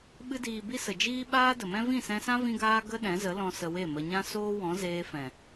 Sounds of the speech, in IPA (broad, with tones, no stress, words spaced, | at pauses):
ɓɨ˧diː˨ bi˦sə˨d͡ʒiː˦ ɓaː˦də˨mɛ̃˦ vĩ˦˨sɛ̃˧sã˦ vĩ˦ɡaː˦ ɡə˦ɗɛ̃˨˦zə˨˦lɔ̃˧ sə˧we˦˨mə˧ ɲã˦ soː˦wɔ̃˨˦ zeː˧fɛ̃˨